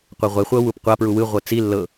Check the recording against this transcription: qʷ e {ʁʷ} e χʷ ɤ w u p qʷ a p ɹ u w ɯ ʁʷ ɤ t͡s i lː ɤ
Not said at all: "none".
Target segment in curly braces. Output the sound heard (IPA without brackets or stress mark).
ʁʷ